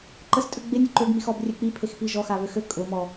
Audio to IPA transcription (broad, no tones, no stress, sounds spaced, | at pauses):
ǃ ə s tʼ ø ɡ͡b e nʲ ʊ ǃ ø ɡ m i x ɔ b rʲ ø k͡p i pʰ e x p i ʒ ɔ x a β ø x ø kʼ ʊ m ɔ